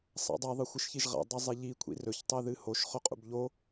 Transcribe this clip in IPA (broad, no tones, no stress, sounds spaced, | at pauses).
sˤ a̰ dˤ a ðˤ ɨ xʷ ɨ ʃ ç i ʒ ʁ a̰ dˤ ɐ zˤ e ʎ i kʷʰ ḭ r ɵ ç tˤ e ð ɨ h o ʃ χ ɵ qʼ ṵ b ʎ o